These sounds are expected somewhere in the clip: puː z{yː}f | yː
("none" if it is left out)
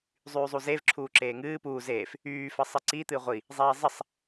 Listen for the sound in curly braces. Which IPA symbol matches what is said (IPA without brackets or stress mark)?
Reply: eː